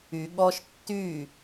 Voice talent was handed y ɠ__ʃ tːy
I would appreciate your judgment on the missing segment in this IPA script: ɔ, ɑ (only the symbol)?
ɔ